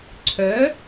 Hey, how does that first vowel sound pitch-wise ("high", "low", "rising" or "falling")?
rising